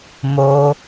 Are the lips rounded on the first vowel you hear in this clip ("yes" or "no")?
yes